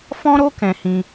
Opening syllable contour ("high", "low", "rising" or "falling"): high